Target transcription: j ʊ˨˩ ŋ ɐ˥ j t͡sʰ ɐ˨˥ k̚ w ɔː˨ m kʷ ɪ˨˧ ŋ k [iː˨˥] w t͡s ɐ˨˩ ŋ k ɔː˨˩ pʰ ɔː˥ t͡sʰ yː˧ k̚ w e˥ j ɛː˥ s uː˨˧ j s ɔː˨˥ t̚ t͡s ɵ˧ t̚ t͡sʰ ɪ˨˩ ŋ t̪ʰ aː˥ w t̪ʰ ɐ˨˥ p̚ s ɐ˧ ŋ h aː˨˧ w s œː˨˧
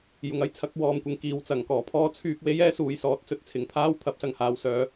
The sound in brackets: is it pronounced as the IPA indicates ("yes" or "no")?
no